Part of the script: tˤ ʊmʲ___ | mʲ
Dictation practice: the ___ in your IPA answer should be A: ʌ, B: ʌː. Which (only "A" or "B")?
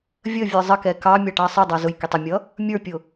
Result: A